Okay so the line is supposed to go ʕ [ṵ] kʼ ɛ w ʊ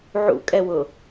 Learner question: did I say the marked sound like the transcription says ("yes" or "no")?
yes